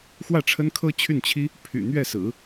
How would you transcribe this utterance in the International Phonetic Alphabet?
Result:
x w ä˥˩ ʈ͡ʂʰ ə˥ n kʰ ɤ˥ t͡ɕʰ y˥˩ n t͡ɕʰ i˥ | pʰ y̰˨˩ n̪ ɥ ɛ˥˩ s ɹ̩˨˩˦

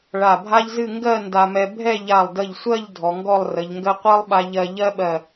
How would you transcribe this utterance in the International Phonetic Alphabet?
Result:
ɭ a˧˩ bʱ a˥ ʎ z ɨ˥˧ ŋ ɡ ɜ˥˧ n d a˧ m ɛ˧ bʱ ɛ˥˧ ʎ a˧˩ lˠ d ə˧˩ ʎ sʷ ɜ˥˧ ʎ dʱ ɔ˩˧ ŋ ɡ ɔ˥˧ lˠ r ə˩˧ ʎ ŋ ɡ ɜ˥ qʷ ɜ˥ lˠ ɓ a˧ ʎ ɜ˧ ʎ ɜ˥ ɓ ɜ˧˩

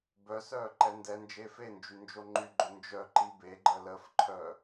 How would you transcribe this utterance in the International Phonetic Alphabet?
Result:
b œ s œː ǃ ɛ n d ɛ n d͡ʒ eː f e n d͡ʒ y n d͡ʒ o ŋ͡ǃ y ɡ͡ǃ o n d͡ʒ œ ǃ i b e ɡ͡ǃ ə l ə f ǃʰ œ

